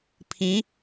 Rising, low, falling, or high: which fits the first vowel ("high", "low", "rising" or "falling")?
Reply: rising